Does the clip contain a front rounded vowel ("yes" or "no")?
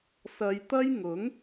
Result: no